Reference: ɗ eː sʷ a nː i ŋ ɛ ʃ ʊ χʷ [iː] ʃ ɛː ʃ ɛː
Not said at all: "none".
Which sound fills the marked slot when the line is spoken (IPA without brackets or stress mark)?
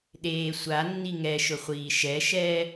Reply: iː